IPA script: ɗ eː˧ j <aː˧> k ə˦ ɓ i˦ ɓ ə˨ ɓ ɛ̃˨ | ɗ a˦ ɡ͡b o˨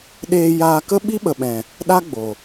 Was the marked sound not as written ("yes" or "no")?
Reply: no